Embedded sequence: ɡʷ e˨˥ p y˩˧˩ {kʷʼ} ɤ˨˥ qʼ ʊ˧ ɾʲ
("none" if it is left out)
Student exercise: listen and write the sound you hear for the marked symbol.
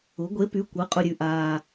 kʷ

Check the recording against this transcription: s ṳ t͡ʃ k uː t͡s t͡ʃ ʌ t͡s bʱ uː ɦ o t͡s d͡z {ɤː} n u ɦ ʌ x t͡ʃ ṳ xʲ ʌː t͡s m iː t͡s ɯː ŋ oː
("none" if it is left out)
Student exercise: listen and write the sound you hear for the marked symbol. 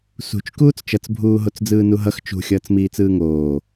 ɯː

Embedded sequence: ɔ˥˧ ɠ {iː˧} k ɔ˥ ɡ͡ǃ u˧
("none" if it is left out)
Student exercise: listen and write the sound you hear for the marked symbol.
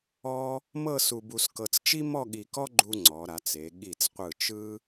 i˧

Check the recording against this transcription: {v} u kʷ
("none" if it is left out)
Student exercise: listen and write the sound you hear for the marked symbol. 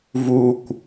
v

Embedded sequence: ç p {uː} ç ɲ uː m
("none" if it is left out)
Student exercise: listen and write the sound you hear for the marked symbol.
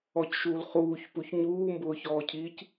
u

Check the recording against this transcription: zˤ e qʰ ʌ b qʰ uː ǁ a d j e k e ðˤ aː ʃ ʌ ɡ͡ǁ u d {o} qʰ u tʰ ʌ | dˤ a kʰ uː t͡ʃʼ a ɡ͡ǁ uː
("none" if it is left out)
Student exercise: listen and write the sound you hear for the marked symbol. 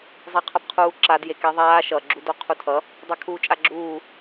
o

